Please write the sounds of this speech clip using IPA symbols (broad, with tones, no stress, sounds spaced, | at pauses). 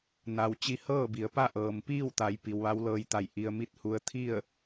n a˧ w t͡ɕ i˧ h ɤː˥˨ b i˩˧ ə̯ p a˥˨ ʔ ɤː˩ m p iː˥˨ w t̪ a˩˧ j p i˩ w ʋ a˧˥ w l ɤː˧ j t̪ a˧˩ j ʔ i˧ ə̯ m i˥˨ t̚ h u˧ ə̯ t̪ʰ i˥˨ ə̯